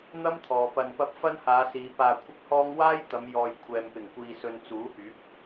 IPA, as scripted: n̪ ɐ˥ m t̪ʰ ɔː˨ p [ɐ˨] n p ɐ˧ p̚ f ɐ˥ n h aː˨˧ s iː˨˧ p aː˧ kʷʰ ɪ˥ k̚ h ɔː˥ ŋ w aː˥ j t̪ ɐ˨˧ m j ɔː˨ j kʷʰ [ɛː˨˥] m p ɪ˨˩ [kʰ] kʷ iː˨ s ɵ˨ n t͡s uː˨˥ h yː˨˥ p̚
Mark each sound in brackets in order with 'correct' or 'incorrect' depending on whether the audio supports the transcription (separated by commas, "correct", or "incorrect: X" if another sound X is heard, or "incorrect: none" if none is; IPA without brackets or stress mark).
correct, incorrect: ɛː˨, incorrect: ŋ